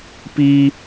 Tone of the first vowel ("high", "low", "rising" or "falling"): high